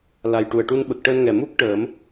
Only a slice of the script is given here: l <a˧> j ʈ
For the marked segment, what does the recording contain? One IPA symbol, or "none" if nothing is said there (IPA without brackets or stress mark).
a˨˩